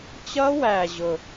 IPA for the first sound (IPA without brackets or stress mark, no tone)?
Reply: t͡ɕ